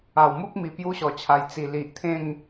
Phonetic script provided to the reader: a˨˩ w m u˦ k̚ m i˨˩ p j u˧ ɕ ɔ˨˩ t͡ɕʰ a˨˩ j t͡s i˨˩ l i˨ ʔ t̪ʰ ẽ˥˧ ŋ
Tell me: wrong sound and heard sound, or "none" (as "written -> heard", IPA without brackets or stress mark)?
none